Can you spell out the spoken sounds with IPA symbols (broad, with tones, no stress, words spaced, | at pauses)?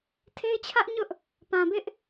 tʰe˦ɪ̯t͡ɕʰä˦ʔɲʊ˦ʔ | pã˨bɪ˦ʔ